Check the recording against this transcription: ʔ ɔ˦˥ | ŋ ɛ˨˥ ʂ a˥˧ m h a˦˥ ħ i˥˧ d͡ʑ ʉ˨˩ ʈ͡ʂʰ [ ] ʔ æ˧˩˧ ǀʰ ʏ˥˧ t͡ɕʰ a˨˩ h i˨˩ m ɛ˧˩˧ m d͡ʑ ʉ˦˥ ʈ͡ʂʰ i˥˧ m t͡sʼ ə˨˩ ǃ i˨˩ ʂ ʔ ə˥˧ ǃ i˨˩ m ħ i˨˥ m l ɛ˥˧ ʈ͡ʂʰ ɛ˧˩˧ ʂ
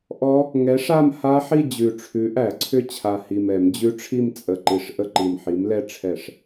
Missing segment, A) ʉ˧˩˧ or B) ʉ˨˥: B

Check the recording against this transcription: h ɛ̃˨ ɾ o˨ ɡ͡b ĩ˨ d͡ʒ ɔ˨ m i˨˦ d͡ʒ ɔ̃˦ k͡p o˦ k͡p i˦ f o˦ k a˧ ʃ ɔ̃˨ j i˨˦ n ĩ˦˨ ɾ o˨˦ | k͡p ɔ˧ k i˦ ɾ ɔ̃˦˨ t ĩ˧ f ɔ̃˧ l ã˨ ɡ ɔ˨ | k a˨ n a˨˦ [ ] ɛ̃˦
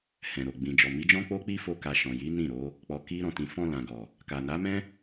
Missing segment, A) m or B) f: A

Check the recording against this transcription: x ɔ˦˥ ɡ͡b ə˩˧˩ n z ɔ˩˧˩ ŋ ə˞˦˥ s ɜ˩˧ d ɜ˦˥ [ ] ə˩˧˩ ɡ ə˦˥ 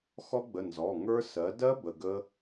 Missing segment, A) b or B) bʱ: A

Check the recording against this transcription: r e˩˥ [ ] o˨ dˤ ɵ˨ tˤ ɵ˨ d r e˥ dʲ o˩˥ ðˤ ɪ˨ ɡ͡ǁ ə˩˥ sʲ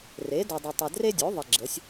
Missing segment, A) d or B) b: A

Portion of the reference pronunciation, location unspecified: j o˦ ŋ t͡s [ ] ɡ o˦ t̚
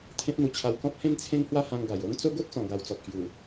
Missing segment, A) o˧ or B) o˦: B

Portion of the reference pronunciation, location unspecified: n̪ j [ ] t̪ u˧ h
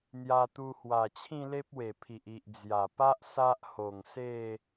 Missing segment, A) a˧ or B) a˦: A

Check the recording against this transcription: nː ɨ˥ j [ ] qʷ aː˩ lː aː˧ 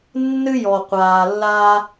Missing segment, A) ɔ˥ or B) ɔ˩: B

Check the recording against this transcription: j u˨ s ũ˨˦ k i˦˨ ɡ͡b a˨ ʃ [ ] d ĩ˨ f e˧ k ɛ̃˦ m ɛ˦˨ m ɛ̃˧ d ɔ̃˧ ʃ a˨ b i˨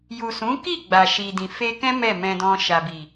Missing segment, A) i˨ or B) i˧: A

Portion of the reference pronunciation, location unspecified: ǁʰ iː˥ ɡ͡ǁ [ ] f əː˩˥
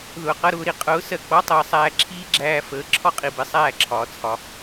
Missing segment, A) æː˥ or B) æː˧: B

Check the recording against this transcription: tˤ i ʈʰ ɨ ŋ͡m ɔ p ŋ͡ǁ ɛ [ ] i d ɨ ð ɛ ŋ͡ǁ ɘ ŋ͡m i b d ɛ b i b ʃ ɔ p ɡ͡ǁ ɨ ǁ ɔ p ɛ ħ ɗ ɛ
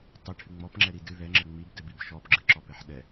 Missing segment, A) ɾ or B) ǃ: A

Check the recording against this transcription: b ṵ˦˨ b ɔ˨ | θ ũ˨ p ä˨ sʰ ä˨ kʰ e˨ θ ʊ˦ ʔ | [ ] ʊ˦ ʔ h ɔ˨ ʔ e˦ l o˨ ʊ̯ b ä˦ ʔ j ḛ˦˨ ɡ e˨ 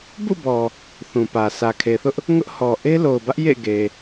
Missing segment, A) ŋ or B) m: A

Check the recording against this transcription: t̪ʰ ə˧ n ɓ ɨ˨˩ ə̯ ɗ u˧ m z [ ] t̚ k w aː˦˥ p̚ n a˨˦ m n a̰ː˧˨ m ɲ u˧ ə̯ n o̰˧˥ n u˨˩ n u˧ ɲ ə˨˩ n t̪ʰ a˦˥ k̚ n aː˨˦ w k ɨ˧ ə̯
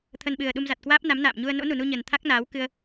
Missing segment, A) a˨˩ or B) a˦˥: A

